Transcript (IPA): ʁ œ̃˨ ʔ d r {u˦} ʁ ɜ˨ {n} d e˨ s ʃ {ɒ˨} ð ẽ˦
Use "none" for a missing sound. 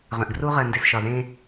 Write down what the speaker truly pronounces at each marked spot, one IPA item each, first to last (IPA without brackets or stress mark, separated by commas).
u˦, n, ɒ˨